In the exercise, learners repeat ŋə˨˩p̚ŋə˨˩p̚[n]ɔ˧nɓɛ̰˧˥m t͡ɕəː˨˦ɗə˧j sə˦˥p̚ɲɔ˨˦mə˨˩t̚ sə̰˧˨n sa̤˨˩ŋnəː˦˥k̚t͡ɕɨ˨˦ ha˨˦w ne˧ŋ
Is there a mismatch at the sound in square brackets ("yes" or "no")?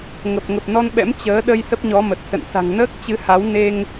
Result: no